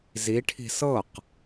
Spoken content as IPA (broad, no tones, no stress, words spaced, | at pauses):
ziʈʰi̤ sɤq